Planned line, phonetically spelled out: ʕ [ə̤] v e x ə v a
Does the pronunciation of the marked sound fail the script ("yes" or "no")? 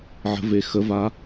no